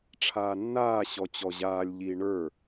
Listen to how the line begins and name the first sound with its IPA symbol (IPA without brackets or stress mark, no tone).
ʈ͡ʂʰ